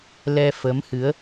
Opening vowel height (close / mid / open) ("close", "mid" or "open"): mid